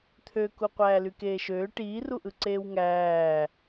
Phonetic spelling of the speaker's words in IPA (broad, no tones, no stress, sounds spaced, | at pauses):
t̪ʰ ø k u qʷ æː l y k eː ʃ øː ʈ iː r u ʔ ɯ ǀ eː w ŋ æː